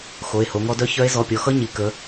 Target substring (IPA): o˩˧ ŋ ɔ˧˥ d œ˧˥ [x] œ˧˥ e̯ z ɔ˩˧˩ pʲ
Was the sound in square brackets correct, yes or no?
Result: no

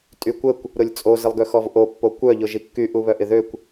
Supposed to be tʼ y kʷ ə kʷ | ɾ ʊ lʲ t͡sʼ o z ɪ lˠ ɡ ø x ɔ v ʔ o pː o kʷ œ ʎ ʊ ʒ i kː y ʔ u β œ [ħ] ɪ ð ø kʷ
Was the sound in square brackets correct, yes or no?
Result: no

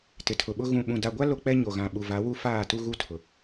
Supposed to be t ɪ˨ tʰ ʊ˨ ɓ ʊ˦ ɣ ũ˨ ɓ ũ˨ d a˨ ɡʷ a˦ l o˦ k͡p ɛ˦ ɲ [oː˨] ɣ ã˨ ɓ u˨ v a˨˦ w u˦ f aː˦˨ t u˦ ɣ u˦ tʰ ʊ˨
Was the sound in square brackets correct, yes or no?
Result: no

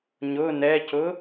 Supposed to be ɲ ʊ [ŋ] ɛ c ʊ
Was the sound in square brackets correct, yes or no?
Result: no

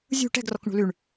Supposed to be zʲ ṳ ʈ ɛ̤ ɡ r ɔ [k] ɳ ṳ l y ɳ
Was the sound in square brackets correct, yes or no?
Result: yes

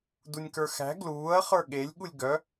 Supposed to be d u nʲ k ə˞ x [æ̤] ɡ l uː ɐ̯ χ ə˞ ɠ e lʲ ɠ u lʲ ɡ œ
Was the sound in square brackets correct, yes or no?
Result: yes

